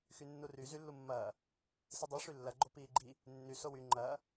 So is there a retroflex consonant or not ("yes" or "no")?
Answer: yes